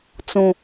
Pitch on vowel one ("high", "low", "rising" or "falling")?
low